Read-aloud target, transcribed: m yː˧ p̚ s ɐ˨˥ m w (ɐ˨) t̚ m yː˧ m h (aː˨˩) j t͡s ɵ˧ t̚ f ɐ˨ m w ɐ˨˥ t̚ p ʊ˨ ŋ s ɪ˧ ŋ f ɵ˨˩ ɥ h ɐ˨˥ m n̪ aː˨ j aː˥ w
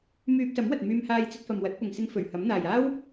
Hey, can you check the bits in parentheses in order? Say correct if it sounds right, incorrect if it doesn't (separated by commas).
correct, incorrect